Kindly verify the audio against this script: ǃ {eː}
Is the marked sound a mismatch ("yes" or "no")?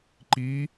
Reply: yes